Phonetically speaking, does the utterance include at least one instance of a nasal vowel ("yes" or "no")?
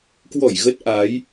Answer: no